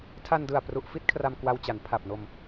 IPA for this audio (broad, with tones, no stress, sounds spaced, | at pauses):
tʰ a˧ n d ɯ˨˩ a̯ p r u˨˩ ʔ f i˥˩ t̚ kʰ r a˧ m k w a˧ w t͡ɕ a˩˦ n pʰ a˨˩ p̚ n o˧ m